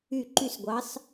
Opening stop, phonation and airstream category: click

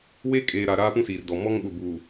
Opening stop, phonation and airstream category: ejective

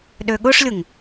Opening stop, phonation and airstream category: implosive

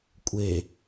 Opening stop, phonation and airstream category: ejective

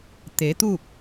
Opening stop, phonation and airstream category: plain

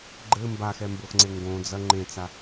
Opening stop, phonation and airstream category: click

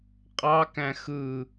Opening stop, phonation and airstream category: ejective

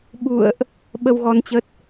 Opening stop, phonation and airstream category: implosive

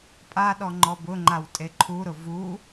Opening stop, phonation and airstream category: ejective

